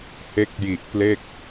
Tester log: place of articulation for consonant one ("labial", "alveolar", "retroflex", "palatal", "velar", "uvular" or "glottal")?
glottal